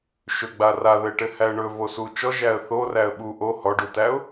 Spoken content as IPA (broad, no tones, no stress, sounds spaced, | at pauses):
ʃ ɵ ɡ͡b a r a ð ɘ ɪ̯ ʈ ɘ h æ ə̯ ɳ ɵ v o s u t͡ʃ ɔ ʒ æ ə̯ θ o r æ ə̯ ɓ u ʔ o h ɔ ɖ u t æ ʊ̯